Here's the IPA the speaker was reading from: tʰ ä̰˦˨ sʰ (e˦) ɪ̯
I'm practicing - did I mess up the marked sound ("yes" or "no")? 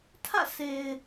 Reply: yes